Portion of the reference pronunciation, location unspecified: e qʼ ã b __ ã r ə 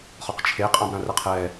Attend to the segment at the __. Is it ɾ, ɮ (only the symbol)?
ɾ